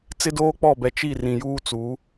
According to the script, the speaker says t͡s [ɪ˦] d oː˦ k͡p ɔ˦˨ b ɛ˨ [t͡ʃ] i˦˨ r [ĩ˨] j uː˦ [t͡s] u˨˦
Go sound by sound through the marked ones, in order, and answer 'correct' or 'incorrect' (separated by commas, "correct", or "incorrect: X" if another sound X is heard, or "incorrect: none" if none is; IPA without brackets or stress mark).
correct, correct, correct, correct